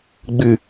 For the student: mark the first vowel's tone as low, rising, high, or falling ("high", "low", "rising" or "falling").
low